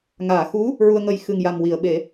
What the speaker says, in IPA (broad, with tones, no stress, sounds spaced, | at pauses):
ŋ aː˨˩˨ x u˧˥ | ɹ u˧ ə̯ ŋ ə˧ j x ɨ˨˩ ŋ j a˨˩ m w i˨˩˨ ə̯ ɓ e˨˩˦